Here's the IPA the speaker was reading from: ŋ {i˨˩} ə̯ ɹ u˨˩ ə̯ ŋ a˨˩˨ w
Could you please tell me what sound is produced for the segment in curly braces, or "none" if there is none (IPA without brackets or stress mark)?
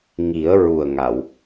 i˨˩˦